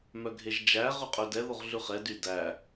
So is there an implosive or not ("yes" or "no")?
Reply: no